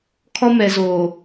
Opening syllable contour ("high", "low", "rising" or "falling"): high